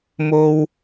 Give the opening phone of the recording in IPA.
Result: m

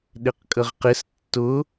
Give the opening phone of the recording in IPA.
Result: ɗ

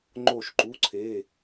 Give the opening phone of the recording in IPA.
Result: ŋ͡ǃ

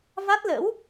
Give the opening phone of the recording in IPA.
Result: v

